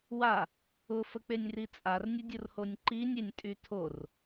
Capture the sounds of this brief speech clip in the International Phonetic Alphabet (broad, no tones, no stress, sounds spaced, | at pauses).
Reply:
w a | ʊ f ə k͡p e nʲ r i t͡sʼ a r nʲ ə dʲ ʊ r h o nʲ ǃ i nʲ e nʲ tʼ y tʰ o r